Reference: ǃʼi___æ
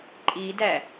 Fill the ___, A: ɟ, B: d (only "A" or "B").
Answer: B